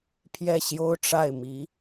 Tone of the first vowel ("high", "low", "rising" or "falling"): falling